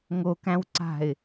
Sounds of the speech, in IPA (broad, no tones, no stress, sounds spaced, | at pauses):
ŋ o k æ̃ w ǀ a̤ ɪ̯